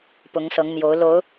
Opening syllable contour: rising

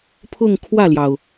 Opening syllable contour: falling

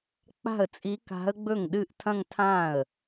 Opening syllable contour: falling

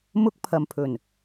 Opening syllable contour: high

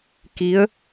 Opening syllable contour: rising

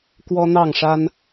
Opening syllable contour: high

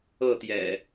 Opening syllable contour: falling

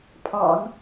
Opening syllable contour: low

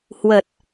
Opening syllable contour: low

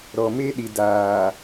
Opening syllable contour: low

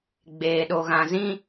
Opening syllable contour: low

